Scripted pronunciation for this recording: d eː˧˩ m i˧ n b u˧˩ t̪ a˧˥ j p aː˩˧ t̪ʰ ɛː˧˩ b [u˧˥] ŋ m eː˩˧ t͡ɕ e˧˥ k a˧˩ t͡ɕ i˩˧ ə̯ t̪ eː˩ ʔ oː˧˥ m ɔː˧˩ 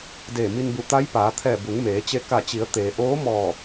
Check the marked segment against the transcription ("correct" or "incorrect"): incorrect